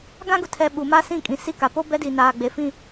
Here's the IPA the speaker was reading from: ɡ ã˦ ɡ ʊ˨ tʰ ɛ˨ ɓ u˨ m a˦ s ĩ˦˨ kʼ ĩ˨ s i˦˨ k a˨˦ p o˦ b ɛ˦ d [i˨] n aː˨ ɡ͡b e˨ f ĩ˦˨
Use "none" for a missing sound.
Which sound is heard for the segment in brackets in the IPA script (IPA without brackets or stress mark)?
i˨